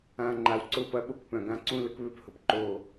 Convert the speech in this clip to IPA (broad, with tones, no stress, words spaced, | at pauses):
ã˨ ŋ͡ǃa˨wǀʊ˦˨pɐ˧ ɓo˦kpœ̃˨ɡã˦ ǀũ˦ lə˦kβø˦phʊ˨p ǃo˦˨